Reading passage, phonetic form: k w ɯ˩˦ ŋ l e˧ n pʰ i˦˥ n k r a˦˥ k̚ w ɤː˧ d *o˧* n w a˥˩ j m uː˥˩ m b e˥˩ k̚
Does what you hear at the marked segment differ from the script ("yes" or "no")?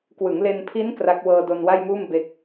no